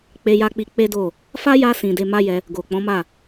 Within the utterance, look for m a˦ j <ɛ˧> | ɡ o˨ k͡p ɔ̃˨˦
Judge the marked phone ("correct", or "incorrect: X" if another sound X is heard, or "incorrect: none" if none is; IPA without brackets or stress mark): correct